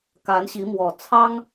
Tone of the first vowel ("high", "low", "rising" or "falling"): rising